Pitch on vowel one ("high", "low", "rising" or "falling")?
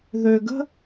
low